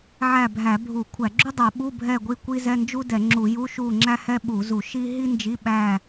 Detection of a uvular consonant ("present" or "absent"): absent